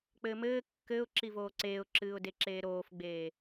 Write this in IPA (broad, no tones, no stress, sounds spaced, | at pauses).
k͡p ɘː m ɘː kː ɘː ʊ̯ ǁ i v oː ǀ eː ʊ̯ ǁ ɨː ʊ̯ d e ǁ eː ɾ oː f ɡ͡b eː